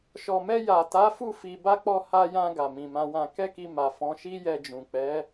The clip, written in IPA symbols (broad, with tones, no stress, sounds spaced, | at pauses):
ʃ ɔ˨ m ɛ˧ j a˨ t a˨˦ f u˦˨ f i˧ b a˦ k͡p ɔ˦˨ h a˧ j ã˧ ɡ a˨ m ĩ˨ m ã˧ w ã˧ k ɛ˦ k i˧ m a˨ f ɔ̃˨˦ ʃ i˦ j ɛ˧ d͡ʒ ũ˨ k͡p ɛ˨˦